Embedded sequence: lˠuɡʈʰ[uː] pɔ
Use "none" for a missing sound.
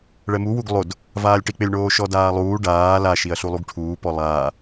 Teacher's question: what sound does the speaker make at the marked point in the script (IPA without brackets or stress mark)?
uː